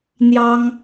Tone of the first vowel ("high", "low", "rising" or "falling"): high